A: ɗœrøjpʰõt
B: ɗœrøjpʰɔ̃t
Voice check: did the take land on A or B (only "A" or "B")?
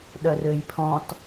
B